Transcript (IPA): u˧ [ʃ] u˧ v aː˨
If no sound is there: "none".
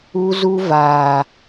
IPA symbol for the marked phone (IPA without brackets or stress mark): z